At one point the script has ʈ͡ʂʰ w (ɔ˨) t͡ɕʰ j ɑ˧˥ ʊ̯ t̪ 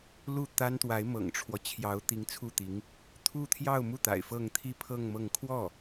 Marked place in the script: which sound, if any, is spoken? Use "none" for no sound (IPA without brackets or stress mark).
ɔ˦